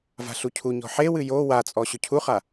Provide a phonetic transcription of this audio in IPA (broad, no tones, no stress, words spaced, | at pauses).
va̤ɬucʰuɲɔ̤ ħewɨ jo wat͡sʼɔ ɕʏcʰuχa